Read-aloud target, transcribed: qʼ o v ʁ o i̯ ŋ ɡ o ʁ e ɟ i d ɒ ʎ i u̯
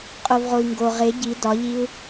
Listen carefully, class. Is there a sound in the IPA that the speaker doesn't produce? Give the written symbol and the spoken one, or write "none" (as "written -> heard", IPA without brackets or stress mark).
none